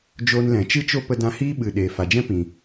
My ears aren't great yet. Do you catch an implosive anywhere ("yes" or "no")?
yes